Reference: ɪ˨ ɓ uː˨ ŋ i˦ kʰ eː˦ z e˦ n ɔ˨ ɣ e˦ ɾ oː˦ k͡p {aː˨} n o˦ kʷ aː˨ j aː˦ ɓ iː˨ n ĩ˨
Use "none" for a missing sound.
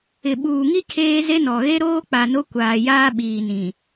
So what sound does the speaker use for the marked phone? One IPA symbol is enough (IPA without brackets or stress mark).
a˨